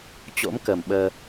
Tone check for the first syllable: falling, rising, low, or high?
rising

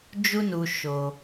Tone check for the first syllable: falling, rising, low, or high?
high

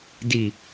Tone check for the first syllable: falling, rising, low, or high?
low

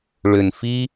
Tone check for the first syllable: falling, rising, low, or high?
low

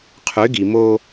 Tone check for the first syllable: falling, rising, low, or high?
rising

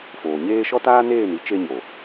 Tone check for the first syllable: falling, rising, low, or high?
low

